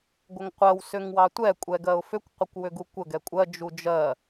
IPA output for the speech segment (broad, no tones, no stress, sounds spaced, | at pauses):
ɡʷ ə ŋ qʷ ɜ w s ʏ ŋ w ɑ tʷ ɛ kʷʼ ɛ ɡ ɜ ʊ̯ f ʏ kʷ qʷ ə kʷ w ʏ ɡ u kʷ ə ɡ ɛ kʷʼ ɜ d͡ʒ u d͡ʒ ɜ